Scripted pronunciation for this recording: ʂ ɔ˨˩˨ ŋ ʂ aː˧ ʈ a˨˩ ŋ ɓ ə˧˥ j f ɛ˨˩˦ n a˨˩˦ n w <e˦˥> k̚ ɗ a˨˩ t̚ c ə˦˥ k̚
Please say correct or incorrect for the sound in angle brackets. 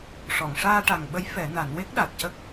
correct